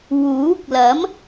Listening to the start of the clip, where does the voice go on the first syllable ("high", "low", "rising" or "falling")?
rising